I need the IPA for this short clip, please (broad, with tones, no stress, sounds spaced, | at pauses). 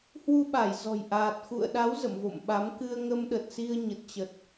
h w u˧ ɓ a˧˩ j z ɔ̤˨˩ j ʔ aː˨˩ t̚ x ṵ˧˨ ə̯ ɗ a˨˦ w z ə̰˧˨ m v o̰˧˨ m ɓ a˨˦ m k ɨ˧ ə̯ ŋ ə˧ m ɗ ə˨˩ t̚ s i˧ ə̯ ɲ ə˨˩ t̚ t͡ɕ ə˨˩ t̚